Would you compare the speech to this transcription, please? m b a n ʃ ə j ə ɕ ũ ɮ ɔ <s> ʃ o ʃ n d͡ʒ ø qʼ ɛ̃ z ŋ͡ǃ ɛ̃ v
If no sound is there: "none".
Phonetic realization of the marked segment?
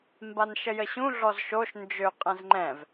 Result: z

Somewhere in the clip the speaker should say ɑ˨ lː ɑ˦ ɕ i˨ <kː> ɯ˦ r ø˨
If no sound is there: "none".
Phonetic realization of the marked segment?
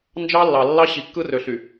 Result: kː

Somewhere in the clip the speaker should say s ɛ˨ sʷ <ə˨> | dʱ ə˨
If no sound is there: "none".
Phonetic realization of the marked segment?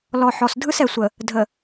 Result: ə˨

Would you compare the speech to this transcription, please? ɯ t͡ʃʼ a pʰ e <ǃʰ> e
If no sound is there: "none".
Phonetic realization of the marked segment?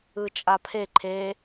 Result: ǃʰ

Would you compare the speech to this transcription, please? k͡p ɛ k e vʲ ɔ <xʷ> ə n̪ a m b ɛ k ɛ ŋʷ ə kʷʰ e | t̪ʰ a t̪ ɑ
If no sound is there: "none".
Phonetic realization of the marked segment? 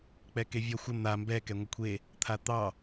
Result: xʷ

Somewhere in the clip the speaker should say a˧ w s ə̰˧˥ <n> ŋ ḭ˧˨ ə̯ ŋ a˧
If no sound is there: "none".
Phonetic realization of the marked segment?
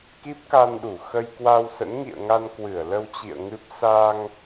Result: n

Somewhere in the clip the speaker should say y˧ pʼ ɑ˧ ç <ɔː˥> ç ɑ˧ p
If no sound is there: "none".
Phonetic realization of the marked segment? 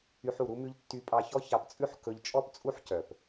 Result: ɔ˥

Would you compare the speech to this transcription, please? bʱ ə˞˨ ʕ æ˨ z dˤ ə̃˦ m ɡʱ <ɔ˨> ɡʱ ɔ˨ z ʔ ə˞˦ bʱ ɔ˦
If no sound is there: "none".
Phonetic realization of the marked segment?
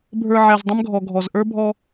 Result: ɔ˨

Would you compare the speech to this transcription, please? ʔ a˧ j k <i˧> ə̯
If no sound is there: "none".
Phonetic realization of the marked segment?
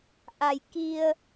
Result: i˧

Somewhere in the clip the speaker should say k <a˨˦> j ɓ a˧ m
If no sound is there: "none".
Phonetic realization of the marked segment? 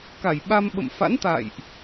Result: a˧˩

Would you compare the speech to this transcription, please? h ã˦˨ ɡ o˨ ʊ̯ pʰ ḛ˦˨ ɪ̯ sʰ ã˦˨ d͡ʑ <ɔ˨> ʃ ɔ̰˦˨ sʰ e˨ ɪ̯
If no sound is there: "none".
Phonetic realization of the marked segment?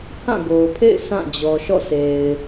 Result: ɔ˨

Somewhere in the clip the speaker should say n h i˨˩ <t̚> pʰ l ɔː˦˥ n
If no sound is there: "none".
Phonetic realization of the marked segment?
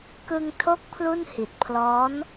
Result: t̚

